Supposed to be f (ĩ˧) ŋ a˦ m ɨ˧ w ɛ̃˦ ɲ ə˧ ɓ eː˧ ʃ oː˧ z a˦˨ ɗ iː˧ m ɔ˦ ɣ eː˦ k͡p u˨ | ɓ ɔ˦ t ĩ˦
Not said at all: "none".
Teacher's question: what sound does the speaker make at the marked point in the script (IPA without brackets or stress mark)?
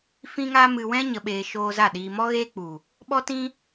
ĩ˦